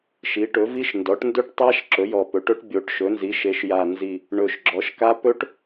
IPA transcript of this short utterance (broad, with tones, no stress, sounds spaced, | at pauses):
ʃ i˩˥ ʈ ɵ˩˥ v i˦˥ ʃ n d ɔ˩˥ ʈ n d ɵ˦˥ ʈ tˤ a˦˥ ʃ ǁ ɵ˩˥ j ɔ˨˩ p ɵ˩˥ ʈ ɵ˦˥ ʈ bʲ o˩˥ ʈ ʃ ɵ˩˥ n z i˩˥ ʃ e˩˥ ʃ j a˨˩ n z i˨˩ | ɳ ɵ˨˩ ʃ ɡ͡ǁ ɔ˩˥ ʃ k a˦˥ p ɵ˦˥ ʈ